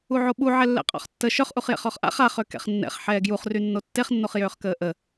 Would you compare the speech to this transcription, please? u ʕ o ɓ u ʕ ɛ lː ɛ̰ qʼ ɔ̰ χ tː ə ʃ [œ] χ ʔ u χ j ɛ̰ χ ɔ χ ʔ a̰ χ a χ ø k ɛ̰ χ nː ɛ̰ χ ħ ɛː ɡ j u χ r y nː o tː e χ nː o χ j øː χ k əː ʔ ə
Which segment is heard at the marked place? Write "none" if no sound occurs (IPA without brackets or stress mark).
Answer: œ